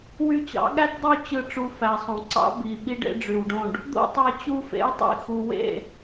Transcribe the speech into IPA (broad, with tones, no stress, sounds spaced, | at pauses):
w y˧ t͡ɕ ɑ̰˨˦ ɠ æ˦ t dˤ y˦˨ t͡ɕ ɯ˦˨ ʈ͡ʂ u˧ f æ˨ sˤ õ˨ ǀ ɑ̰˦ b i˨ ɓ i˦ ɖ ḛ˦ ɖ͡ʐ y˨ w ɖ õ˦˨ ɖ | d̪ o̰˦ tˤ æ˧ t͡ɕ u˦ f ḛ˦ j tˤ ḭ˦˨ x u˨ w ḛ˦˨